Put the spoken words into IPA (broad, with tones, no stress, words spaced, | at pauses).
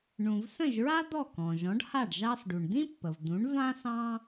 ɳũ˩vsə̃˥˩ʒɹa˥ d̪ɔ˥˩kɔ̃˩ʒɔ̃˩˥ɖha˥˩ɖ ʒɑ˧sɖu˩ɳd̪ĩ˥pːə˩v d̪ũ˩˥ɳvã˥ sɑ̃˥